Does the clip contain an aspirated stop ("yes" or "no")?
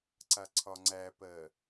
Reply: yes